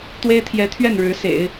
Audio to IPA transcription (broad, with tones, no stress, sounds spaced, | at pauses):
t̪ w e˥ ɪ̯ t̪ʰ j ɛ˧˥ t̪ʰ ɥ ɛ˥˩ n ɻ ɻ̩˧˥ s ḛ˨˩˦ ɪ̯